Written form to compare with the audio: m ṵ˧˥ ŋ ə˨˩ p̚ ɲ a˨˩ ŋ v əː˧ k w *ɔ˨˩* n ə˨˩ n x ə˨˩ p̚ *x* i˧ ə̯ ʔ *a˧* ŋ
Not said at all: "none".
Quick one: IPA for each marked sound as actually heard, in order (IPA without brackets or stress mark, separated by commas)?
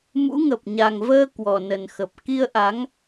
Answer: ɔ˨˩, k, a˨˦